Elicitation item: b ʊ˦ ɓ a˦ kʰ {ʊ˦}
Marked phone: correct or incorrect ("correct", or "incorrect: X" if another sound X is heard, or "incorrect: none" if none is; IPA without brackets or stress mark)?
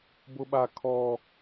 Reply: incorrect: ɔ˦